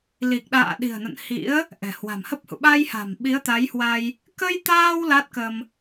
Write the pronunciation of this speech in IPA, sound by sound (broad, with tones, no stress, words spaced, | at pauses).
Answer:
li˨˩k̚ɗa̰ː˧˨ ɗi̤˨˩ə̯nə̰˧˨n hḭ˧˥ə̯ | ʔɛ̤˨˩hwa̤˨˩mhə˦˥p̚hṵ˧˨ ɓa˧jha̤˨˩m ɓi˨˦ə̯t̪a˨˦jhwa˧j | kə˧jt̪aː˧w la˦˥t̚kə˧m